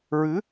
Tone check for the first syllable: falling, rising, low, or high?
rising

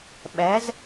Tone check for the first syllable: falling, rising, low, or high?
rising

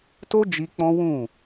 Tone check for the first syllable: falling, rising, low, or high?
high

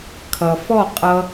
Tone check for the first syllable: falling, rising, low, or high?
low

